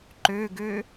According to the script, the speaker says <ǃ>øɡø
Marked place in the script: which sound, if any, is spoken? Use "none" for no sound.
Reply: ǃ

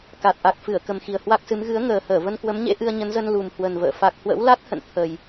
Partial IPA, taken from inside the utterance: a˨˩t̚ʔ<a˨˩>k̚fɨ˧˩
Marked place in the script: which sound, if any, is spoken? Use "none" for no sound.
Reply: a˨˩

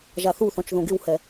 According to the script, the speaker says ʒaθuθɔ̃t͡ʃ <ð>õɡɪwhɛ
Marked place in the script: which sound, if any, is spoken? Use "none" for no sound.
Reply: ð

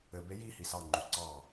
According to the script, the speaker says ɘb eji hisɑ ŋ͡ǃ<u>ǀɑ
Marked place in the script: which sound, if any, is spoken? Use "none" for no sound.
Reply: u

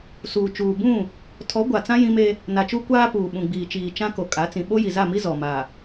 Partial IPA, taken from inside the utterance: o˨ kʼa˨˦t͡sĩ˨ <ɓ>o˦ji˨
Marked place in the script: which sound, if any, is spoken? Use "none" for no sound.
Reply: ɓ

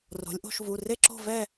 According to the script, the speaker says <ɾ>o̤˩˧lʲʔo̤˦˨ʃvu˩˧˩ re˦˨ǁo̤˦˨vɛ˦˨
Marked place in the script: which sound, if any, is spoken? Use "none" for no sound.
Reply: r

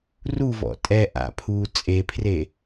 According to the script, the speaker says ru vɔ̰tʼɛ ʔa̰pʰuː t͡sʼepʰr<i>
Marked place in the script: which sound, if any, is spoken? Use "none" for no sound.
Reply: e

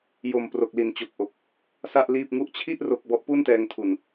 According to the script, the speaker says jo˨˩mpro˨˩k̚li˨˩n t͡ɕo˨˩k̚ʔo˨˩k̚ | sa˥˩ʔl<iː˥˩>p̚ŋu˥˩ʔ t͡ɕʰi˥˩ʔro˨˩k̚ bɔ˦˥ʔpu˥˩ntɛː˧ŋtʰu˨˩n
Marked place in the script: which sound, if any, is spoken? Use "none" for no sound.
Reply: iː˥˩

